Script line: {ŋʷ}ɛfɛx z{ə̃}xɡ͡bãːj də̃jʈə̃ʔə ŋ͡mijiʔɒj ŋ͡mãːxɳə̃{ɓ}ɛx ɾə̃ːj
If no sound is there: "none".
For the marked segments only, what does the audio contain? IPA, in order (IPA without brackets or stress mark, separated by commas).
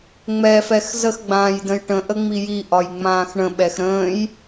ŋ͡m, ə, ɓ